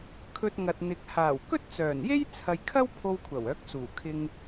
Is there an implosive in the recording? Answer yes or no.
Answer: no